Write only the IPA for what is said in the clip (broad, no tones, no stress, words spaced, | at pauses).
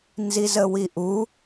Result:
nzizəwiʔu